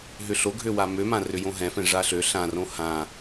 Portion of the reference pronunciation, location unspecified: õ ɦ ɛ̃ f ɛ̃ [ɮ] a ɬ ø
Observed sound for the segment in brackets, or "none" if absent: ʐ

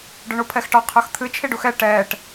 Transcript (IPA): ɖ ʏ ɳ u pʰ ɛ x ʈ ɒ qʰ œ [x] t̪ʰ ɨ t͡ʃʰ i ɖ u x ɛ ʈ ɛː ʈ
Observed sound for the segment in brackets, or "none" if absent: x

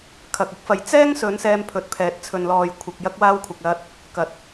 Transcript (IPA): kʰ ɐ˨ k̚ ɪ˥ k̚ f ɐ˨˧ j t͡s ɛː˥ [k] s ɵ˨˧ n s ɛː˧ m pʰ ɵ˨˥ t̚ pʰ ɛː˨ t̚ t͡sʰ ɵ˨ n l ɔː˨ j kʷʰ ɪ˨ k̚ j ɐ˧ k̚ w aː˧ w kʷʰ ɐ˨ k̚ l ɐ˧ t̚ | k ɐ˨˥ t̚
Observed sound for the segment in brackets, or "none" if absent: ŋ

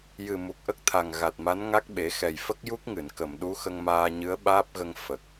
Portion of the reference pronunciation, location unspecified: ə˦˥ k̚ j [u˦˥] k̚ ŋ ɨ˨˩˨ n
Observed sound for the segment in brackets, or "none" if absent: u˦˥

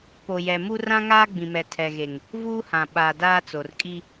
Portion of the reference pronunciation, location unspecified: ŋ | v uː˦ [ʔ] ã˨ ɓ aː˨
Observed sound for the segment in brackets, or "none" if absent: h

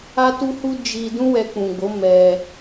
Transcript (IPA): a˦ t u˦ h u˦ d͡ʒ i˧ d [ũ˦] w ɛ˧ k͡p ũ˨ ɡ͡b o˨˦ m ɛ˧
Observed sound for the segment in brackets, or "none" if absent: ũ˦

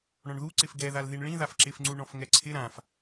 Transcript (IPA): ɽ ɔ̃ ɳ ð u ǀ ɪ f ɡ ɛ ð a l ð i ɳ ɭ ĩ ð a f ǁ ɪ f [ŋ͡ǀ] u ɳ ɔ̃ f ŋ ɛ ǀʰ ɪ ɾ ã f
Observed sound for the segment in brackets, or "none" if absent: ŋ͡ǀ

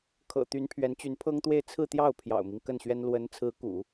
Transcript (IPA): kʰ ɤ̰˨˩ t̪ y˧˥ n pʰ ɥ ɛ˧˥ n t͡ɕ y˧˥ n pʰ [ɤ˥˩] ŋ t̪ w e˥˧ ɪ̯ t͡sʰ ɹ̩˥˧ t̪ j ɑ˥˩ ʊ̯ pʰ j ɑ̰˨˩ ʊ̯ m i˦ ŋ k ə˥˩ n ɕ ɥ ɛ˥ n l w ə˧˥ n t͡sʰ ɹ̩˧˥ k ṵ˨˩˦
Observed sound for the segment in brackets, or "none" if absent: ɤ˥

